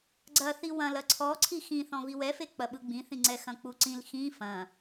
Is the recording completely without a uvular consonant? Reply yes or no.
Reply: yes